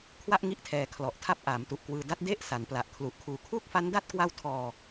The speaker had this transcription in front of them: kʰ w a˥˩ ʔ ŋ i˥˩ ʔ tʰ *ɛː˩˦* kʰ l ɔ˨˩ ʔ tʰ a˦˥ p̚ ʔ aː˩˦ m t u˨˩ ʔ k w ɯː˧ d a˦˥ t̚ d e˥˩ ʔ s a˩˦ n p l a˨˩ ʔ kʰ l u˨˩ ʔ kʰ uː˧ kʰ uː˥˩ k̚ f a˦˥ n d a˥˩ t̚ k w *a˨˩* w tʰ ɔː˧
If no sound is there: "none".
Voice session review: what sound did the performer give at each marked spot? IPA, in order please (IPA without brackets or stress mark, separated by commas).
ɛː˧, a˦˥